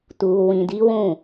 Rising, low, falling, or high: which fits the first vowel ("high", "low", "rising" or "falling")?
low